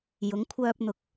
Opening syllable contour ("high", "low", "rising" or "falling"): rising